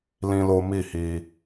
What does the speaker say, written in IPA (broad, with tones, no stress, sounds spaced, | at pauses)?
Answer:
l ĩ˦ l o˦ m i˦˨ h i˧